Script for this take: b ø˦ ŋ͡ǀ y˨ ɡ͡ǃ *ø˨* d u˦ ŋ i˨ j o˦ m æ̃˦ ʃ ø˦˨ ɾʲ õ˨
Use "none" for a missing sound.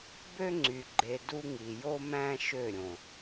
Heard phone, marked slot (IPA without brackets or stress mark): e˨